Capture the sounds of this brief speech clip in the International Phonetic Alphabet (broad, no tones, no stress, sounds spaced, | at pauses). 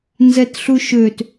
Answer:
n z ɛ t ɬ u ʃ ø t